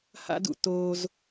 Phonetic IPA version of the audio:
h a̰˥ d ṵ˥˩ t oː˥ z

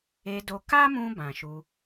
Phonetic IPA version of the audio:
e˧ d o˧ k a˦ m ũ˧ b ã˨ ʃ u˧

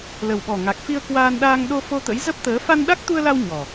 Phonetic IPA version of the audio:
l ə˨˩ w ɓ ɔ˨˩ ŋ a˨˩ k̚ f i˧ ə̯ k w aː˧ n ɗ aː˧ ŋ ɗ o˧ f o˧ t̪ ə̰˧˥ j z ə˦˥ p̚ t̪ əː˨˦ f a˧ n ɗ a˦˥ k̚ t̪ u˧ ə̯ l a˧ w ɲ ɔ˨˩

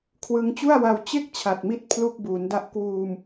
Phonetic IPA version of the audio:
kʰ w ɯ˧ ŋ t͡ɕ u˥˩ a̯ w a˧ w t͡ɕ e˥˩ k̚ t͡ɕʰ a˨˩ t̚ m i˦˥ t̚ pʰ l u˥˩ k̚ b uː˩˦ n d a˦˥ ʔ k w uː˧ m

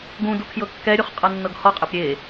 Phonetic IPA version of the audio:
ɡ ũ d u kʰ j ɤ kː ɛ ɾʲ u χ qʼ ɤ nː ɤ ɡ h ɔ qʼ e p ɾʲ e

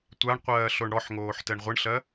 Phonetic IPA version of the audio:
tʷ a ɳ qʷ ɜː ɬ o ɳ ɽ ɔ ħ ŋ oː ħ t ɛ ɳ ʁʷ ɯ ɳ ɬ ɜ

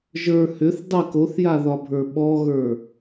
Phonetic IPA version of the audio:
ʒ ə˞ h ʏ θ dˤ ɛ k o θ j a ð ɒ bʱ ə˞ ɓ ɔ ɣ ə˞

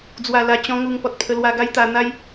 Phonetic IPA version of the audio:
d͡z w a˨˩ l a˨˩ t͡ɕ ɔ̃˧ ŋ u˧ ŋ p ɔ˨ t̚ pʰ ə˧ l w a˧ ɡ a˦ j t̪ a˧ n̪ a˦ j

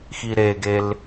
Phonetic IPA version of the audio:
x i ɾ e ɡ e l

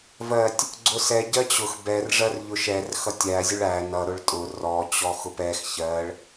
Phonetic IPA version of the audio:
v ɜ tʲ | ɡ͡ǀ ʊ s ɛ ɟ ɜ t͡ɕ ʊ x b ɛ r ʐ ɜ r ʎ ʊ ʃ ɛ r x ʌ tʲ æ zʲ ʊ ɭ æ n ʌ ɾ ʊ ɭ tʼ ʊ r ɔ t͡ɕ ɔ x ʊ p ɛ x ç ɜ ɭ

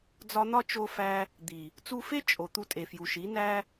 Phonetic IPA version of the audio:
d͡z ɒ˧ n̪ ɒ˦ t͡ʃ o˧ f æ˧ | d̪ i˨ | t͡s u˧ f e˦ t͡ʃʼ o˨ t̪ u˧ tʼ e˨ f j u˨ ʃ i˨˦ n æ˦

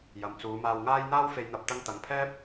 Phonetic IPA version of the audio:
j ɐ˨ m t͡s uː˨˧ m aː˧ w ŋ aː˥ j n̪ aː˥ w f e˧ j n̪ ɐ˧ p̚ t̪ ɐ˧ ŋ t̪ ɐ˨ ŋ pʰ ɛː˥ p̚

